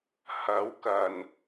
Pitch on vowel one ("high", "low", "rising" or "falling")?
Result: rising